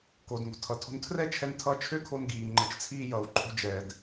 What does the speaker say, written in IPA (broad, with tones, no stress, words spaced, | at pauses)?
koː˩dŋo̤˩tʰʌ˩tʰo̤˧n tʰrɛ˥t͡ʃʰɛ˧n tʰʌ˧t͡ʃʰø˥kʰo˧n ɡiː˩ŋ͡ǃə˩t͡ʃt͡sʰiː˧ jʌ˩w ǃʼo̤˧d͡ʒɛ˩d